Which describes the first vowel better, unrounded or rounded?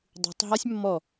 rounded